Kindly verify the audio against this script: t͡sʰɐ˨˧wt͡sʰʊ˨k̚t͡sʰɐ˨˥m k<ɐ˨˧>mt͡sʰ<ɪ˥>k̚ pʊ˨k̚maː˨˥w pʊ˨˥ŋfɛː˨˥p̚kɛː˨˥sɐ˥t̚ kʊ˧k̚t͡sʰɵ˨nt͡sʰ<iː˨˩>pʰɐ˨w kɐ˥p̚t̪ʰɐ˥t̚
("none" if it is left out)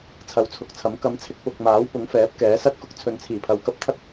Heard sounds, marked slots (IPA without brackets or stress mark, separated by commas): ɐ˨˧, ɪ˧, iː˨˩